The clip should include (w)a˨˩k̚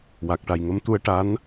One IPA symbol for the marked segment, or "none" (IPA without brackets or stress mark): w